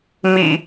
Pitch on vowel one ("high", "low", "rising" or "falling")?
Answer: low